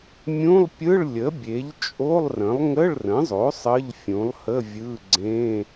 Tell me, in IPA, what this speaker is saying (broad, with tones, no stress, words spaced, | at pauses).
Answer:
mʲũ˧˥˧lˠpʲɯ˧˥˧ɭlʲə˩˥bʲe˩˥ʎ t͡ʃʼo˧˥˧lˠrə̃˩˥lˠ ŋə˧˥˧ɭrə̃˩˥zˤo˩˥ sˤə˧˥˧ʎfʲũ˩˥lˠhə˧˥˧ vʲɯ˧˥˧ɡ͡ǀẽ˧˥˧